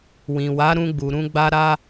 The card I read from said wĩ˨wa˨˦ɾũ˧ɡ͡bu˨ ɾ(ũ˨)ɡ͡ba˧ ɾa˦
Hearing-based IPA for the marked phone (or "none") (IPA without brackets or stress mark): ũ˧